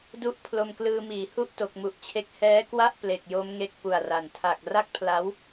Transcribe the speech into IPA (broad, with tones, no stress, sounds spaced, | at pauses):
d u˦˥ ʔ pʰ l o˧ m k l ɯː˧ m iː˩˦ h u˥˩ ʔ t o˨˩ k̚ m u˨˩ ʔ t͡ɕʰ e˦˥ k̚ h ɛː˦˥ k w a˥˩ ʔ p l e˨˩ k̚ j o˦˥ m ŋ e˦˥ k̚ p u˨˩ a̯ r a˨˩ n tʰ a˨˩ k̚ r a˥˩ k̚ pʰ l a˦˥ w